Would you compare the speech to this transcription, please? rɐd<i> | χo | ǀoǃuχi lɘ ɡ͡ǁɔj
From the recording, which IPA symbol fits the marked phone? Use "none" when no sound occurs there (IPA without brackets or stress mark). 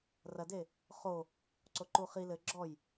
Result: e